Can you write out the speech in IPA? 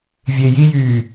vʲ e j i j yː

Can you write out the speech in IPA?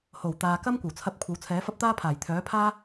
h o˨˩ w t̪ aː˨ k ɐ˥ m kʷ ɐ˨˩ w t͡sʰ ɐ˧ p̚ kʷʰ ɐ˨˥ w t͡sʰ ɛː˨˥ f ɐ˥ p̚ t̪ aː˥ pʰ aː˨˩ j t̪ʰ œː˨˥ pʰ aː˥

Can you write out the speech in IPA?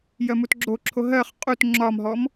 j ɜ m u t ɡ͡ǁ o ǁʰ o ɦ ɜ χ qʼ u t ŋ͡ǁ ɒ m ɦ ɔ m

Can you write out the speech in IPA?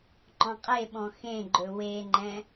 ŋ͡ǃ ɔ̃ qʼ e ɓ ɔ̃ x ẽ ɡ͡ǃ ɵ w e ŋ͡ǃ ɛ̃

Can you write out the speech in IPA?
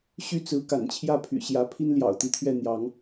ɕ y˦ t͡s ɹ̩˨˦ k a̰˨˩ n t͡ɕʰ j ä˥˨ pʰ y̰˨˩ ɕ j ä˨˦ pʰ i˦ n l j ɑ̰˨˩ ʊ̯ t̪ i˨˦ t̪ʰ ɥ ɛ˥˨ n̪ j ɑ˨˦ ŋ

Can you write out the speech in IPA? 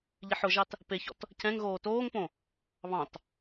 ʎ i ħ ʊ ʒ ɑ t | p e ç ɔ̰ t | c ɛ̃ ŋ ɣ oː t oː ŋ p õ | β ɑ̃ t

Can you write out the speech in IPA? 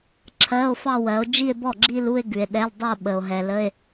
ǁʰ ɜ˧˥˧ o̯ f ɑ˥˧ w ɜ˨˦ o̯ d͡ʒ i˥˧ e̯ b ɔ˥˩ ɡ͡ǁ i˥˧ l u˥˧ e̯ ɡ ʉ˨ e̯ ɗ ɛ˧˥˧ l dˤ ʉ˥˧ o̯ ɓ ə˨ o̯ ɦ ɛ˨ l ə˧˥˧ e̯

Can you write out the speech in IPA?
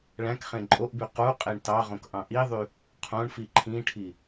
ɭ æ̃ k χ ẽ ǃʼ o ʔ b y q u qʼ e ɳ t ɑ ʁ õ k ʔ ɑ̃ ʔ i ðˤ y | qʰ õ ɳ f i ǃʰ ĩ ʈʰ i

